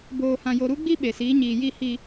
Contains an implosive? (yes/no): yes